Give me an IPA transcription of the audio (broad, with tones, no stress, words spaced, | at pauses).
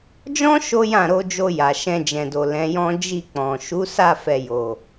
d͡ʒɔ̃˦ ʃo˦jã˦˨ ɾo˧d͡ʒo˧ ja˨ʃɛ̃˧d͡ʒɛ̃˨do˨ lɛ̃˨˦jɔ̃˦ d͡ʒi˦˨k͡pɔ̃˨ ʃu˨˦sa˦˨fɛ˨jo˨